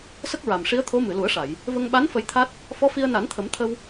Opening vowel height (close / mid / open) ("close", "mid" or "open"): mid